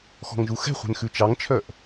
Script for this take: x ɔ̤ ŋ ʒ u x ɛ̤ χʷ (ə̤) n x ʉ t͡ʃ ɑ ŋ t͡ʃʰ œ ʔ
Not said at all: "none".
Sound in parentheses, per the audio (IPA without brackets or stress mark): ɛ̤